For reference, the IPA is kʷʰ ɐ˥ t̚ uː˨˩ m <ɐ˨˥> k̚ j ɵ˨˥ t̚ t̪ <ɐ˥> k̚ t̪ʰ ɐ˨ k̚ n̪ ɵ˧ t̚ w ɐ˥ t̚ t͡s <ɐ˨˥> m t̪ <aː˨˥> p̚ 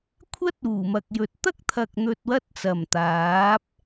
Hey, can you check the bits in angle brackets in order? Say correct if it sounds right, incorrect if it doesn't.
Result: incorrect: ɐ˨, correct, incorrect: ɐ˨˩, correct

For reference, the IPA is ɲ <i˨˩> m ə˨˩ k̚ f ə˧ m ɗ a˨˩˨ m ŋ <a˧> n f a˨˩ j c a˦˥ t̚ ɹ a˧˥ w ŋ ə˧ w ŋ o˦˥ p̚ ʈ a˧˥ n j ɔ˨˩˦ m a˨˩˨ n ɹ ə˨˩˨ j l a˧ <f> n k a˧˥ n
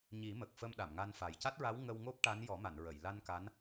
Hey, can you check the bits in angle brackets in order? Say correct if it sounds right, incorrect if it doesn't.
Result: incorrect: i˨˩˦, correct, incorrect: none

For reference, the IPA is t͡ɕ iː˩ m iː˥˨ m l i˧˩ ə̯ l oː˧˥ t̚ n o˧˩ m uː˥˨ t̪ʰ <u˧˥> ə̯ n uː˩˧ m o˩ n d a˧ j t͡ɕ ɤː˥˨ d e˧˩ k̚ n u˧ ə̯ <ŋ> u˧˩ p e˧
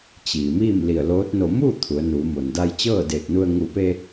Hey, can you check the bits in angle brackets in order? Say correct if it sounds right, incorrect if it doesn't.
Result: incorrect: u˩˧, correct

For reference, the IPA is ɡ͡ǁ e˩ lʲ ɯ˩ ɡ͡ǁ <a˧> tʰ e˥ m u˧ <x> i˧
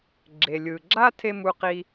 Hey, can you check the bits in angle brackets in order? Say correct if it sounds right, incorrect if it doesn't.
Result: incorrect: a˥, incorrect: q

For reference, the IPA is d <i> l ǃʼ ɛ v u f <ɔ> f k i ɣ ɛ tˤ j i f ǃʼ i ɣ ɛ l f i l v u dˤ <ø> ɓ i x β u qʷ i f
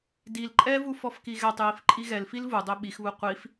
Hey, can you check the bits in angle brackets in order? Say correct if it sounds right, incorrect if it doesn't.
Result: correct, correct, correct

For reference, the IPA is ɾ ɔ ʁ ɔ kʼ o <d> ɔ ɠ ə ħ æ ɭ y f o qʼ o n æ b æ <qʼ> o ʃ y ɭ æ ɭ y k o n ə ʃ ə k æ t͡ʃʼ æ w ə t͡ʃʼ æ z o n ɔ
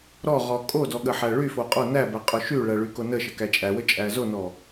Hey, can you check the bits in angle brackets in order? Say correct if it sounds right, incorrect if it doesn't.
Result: correct, correct

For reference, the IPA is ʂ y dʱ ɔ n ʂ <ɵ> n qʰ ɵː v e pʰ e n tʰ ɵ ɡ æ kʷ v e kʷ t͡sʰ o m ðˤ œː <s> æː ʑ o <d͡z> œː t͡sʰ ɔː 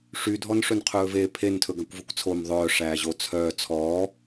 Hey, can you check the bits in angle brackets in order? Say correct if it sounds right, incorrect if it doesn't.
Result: correct, incorrect: ʂ, incorrect: t͡sʰ

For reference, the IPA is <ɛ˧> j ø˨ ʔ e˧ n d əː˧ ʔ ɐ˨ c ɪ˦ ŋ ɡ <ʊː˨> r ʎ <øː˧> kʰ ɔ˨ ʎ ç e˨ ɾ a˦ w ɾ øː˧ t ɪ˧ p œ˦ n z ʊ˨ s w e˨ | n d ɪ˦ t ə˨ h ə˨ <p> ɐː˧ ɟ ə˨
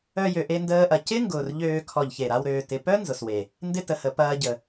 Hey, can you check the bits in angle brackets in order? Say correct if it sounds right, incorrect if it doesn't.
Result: incorrect: œ˧, correct, correct, correct

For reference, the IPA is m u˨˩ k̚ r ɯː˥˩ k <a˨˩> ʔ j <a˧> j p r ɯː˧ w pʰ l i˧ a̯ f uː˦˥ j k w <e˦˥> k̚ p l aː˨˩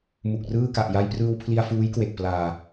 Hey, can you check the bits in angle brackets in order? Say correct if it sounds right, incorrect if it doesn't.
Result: correct, correct, incorrect: e˨˩

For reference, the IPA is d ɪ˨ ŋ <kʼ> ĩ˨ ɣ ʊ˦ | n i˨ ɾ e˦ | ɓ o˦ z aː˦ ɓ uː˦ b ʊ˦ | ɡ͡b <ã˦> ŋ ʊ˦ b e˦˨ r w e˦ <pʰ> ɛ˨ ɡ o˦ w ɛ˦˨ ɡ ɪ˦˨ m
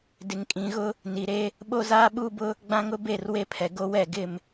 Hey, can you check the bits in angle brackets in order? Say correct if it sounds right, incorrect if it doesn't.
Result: correct, correct, correct

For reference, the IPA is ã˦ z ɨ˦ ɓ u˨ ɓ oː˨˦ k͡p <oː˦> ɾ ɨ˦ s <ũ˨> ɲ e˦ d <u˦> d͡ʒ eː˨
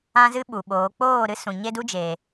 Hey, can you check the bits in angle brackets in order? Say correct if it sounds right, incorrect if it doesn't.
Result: incorrect: oː˦˨, correct, correct

